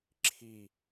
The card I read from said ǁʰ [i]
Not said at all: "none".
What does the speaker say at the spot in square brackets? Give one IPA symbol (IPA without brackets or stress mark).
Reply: i